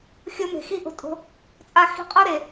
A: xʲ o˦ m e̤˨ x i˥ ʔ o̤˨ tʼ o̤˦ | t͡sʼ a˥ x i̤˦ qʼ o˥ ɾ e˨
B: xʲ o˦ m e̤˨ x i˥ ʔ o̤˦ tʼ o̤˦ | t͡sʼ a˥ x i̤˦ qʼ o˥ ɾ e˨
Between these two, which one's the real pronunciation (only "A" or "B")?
B